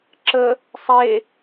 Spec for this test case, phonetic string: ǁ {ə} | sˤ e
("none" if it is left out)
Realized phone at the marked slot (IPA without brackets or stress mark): ə